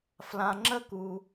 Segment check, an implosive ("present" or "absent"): absent